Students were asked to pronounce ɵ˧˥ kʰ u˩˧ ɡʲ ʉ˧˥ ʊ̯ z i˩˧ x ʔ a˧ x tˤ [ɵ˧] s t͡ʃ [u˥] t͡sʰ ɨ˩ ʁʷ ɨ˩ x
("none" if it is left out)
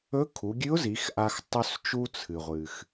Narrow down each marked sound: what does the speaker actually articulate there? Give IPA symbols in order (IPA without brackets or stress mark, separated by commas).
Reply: ɵ˧, u˧